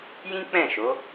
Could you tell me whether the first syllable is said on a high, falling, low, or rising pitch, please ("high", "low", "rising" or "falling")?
high